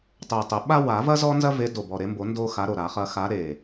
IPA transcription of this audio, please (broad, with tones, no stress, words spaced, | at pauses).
tˤɛ˨˩tˤə˨˩˦ ɓa˥ wa˨˩˦vɐ˥ zɔ˥ nzɐ˥ve˨˦ do˨˩ bɔ˨˩ɾe˨˦mbo˨˩˦ ndo˥ xa˨˦ɾo˨˩ ɾa˨˩˦χɐ˨˦ xa˨˦ ɾe˨˩